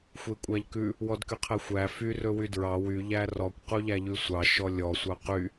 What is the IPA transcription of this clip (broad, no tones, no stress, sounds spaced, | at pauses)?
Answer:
xʷ e kʷʼ æ ʎ k ʉ | w ɔ d k y qʰ ɛ xʷ æ f y r ɵ w y d ɹ ɑ w y ʎ æ r ɔ kʷ q u ʎ æ ʎ ʉ sʷ ɑ ʃ ɔ lʲ ɔ sʷ ɑ q y